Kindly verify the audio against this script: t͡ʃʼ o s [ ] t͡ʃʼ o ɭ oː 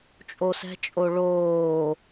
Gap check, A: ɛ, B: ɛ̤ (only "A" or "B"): B